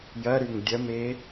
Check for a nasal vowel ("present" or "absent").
absent